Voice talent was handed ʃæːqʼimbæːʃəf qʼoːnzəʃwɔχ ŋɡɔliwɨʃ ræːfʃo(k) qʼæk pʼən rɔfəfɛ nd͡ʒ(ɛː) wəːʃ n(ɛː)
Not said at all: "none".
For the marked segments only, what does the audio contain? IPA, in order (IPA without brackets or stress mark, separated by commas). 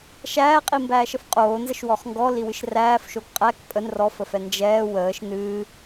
k, ɛː, ɨː